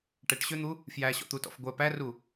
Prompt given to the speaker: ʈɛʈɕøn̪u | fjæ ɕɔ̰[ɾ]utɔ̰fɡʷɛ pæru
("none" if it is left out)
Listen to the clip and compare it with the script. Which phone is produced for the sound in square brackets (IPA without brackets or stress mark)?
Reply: t̪